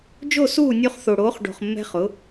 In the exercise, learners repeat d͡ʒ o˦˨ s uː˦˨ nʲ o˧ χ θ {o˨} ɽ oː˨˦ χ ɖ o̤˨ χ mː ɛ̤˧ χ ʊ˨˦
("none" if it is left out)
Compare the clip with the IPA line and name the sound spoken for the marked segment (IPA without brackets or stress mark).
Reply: o˨